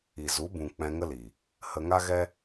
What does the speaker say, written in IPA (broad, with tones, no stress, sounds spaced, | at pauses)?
i˨ z u˨˦ b ũ˨ k͡p ɛ̃˧ ŋ ə˦ l i˨ | h ə˧ ŋ a˦ ɣ ɛ˦